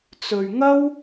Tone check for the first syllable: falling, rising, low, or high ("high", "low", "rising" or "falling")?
low